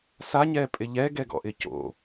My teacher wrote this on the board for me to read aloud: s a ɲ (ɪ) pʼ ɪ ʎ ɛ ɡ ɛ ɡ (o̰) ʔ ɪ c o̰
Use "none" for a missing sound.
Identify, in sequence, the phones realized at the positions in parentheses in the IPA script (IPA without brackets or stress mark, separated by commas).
ɛ, ɔ̰